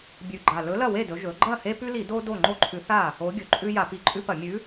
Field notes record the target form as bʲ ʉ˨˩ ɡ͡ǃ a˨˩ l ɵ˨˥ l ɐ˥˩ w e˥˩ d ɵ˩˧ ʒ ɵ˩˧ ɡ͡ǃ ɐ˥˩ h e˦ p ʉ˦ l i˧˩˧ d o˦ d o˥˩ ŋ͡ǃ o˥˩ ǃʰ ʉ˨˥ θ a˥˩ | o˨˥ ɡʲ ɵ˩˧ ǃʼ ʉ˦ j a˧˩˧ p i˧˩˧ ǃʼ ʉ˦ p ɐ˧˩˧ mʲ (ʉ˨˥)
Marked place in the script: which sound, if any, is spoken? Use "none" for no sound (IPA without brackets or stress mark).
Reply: ʉ˨˥